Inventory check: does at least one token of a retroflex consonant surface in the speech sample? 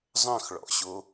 yes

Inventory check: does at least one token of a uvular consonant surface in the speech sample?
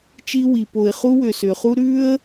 yes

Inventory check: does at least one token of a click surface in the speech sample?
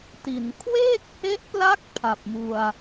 no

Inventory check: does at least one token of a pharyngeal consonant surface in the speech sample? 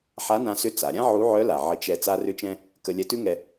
yes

